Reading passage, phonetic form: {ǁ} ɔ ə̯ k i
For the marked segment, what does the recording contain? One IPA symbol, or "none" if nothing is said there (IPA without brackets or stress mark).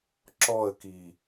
ǁ